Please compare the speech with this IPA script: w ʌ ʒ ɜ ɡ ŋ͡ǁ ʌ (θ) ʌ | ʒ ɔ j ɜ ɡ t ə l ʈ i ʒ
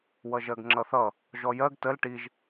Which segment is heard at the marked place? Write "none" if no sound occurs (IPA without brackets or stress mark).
θ